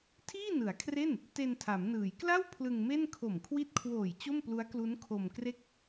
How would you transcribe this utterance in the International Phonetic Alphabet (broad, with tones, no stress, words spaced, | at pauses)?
tʰiː˥˩nɯ˩˦a̯kʰre˥˩n | te˧ntʰa˩˦m nɯː˩˦jkla˥˩w pʰlɯ˧ŋme˥˩n kʰo˨˩mkʰwi˦˥t̚kʰwoː˨˩j t͡ɕo˥˩mplu˦˥a̯klu˦˥n kʰo˧mkre˥˩k̚